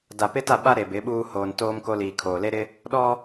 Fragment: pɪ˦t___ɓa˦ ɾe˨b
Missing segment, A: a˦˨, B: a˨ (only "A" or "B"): A